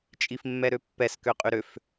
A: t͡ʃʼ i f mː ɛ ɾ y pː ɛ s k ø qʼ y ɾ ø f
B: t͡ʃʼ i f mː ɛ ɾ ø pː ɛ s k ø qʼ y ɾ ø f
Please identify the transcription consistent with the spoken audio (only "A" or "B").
B